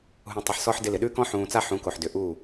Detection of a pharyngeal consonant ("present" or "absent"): present